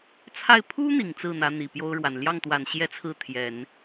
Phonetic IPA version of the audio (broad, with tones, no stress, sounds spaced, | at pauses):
t͡sʰ a˥˩ ɪ̯ pʰ u˥ n̪ i˨˩ ŋ t͡s ɹ̩˥˩ n̪ ä˧˥ n̪ i˨˩ p j o˥ ʊ̯ ɻ w a˨˩ n l j ɑ˥˩ ŋ t̪ w a˨˩ n ɕ j ɛ˥ t͡sʰ ɹ̩˥˩ t̪ʰ j ɛ˨˩˦ n